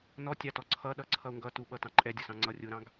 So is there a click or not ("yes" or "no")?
yes